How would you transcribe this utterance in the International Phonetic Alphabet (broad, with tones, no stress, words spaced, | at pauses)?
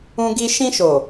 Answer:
ũ˧ɡi˧ ʃĩ˧ʃo˨